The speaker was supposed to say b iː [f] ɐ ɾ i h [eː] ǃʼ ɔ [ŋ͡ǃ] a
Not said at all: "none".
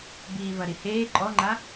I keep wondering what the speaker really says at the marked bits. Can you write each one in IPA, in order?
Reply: v, eː, ŋ͡ǃ

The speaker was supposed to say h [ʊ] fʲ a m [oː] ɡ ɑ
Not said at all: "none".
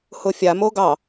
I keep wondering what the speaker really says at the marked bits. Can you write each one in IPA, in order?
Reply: ʊ, o

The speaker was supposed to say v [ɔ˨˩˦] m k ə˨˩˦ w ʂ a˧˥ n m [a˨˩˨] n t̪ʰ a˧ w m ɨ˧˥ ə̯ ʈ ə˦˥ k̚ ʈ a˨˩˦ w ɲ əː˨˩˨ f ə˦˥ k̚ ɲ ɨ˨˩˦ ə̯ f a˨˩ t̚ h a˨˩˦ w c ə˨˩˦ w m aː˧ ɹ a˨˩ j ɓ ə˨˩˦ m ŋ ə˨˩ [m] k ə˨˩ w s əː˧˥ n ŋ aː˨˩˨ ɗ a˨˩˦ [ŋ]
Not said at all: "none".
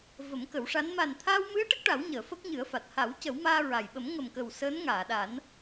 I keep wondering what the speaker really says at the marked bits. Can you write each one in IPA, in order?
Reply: ə˨˩˦, a˨˩, m, n

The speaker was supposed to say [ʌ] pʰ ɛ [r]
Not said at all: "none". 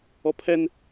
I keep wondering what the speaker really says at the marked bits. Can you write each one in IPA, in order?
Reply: ɔ, n

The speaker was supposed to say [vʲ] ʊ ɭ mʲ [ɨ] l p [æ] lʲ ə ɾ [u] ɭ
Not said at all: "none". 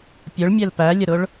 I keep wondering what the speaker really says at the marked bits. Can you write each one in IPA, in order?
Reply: pʲ, ɛ, æ, ʊ

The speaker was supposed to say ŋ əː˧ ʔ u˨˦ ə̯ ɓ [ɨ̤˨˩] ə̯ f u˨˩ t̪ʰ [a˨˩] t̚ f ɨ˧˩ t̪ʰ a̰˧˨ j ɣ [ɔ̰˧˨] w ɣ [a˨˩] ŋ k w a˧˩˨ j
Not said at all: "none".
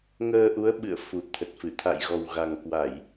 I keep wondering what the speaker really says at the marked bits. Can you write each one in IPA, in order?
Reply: ɨ̰˧˨, ə˨˩, ɔ˨˩, a˨˩

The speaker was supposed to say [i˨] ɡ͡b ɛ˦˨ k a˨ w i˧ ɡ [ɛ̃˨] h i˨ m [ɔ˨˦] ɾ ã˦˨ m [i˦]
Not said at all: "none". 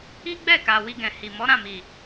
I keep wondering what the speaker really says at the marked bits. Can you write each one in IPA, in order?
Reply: i˦, ɛ̃˨, ɔ˨˦, i˨

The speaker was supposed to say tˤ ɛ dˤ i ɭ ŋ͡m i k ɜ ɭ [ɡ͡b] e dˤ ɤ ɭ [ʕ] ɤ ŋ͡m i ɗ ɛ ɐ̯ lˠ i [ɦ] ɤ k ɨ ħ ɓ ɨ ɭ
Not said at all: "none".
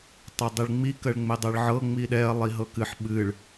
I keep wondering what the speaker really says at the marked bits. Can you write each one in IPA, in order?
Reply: ŋ͡m, ʕ, ɦ

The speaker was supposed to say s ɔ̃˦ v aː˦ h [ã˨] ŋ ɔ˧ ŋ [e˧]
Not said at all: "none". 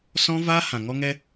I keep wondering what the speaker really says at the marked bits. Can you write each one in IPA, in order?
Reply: ã˨, ɛ˧

